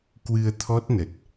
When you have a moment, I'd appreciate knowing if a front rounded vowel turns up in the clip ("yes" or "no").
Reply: no